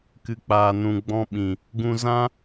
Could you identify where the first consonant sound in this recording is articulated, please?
velar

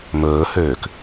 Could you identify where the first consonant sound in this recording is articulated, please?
labial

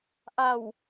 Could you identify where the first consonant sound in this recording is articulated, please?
glottal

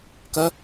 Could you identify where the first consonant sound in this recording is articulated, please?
velar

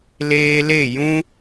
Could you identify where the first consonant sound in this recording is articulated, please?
alveolar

